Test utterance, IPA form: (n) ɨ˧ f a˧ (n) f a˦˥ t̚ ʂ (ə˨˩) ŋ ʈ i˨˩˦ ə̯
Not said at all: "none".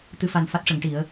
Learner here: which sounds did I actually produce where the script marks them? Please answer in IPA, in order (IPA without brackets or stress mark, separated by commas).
t̪, n, ə˨˩˦